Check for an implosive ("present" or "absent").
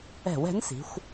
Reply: absent